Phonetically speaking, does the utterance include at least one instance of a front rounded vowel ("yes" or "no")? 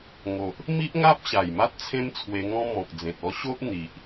no